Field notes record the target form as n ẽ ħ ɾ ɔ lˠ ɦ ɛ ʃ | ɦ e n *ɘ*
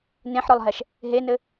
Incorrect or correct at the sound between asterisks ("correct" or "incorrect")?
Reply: correct